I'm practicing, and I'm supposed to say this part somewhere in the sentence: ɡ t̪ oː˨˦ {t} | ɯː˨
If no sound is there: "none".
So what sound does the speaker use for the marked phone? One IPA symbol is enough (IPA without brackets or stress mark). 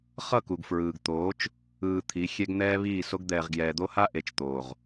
t͡ʃ